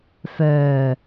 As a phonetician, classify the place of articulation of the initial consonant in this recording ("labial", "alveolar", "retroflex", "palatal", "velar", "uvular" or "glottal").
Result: labial